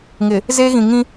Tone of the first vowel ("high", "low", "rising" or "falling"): low